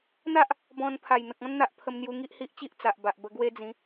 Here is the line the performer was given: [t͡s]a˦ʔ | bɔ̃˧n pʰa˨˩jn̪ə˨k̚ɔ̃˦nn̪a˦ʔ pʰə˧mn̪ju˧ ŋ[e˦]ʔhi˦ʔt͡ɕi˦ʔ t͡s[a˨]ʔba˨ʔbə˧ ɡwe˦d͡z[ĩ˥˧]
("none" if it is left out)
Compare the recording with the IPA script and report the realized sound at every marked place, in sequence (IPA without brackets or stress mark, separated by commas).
n̪, i˦, a˨, ĩ˨˦